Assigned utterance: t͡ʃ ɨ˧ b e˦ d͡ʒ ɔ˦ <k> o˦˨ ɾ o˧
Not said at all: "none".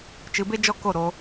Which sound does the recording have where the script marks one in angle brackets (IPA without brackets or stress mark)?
k